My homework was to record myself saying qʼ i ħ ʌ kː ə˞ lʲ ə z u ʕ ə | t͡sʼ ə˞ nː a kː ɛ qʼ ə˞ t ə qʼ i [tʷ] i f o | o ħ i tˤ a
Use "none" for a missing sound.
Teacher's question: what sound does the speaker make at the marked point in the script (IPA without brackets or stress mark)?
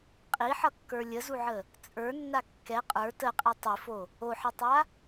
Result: tˤ